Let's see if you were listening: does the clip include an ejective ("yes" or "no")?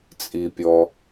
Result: yes